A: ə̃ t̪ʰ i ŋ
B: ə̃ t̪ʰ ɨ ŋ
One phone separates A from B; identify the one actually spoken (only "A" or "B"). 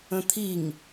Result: A